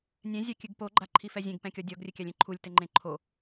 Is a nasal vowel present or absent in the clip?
present